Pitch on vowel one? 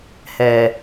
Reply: low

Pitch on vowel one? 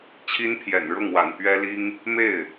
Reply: high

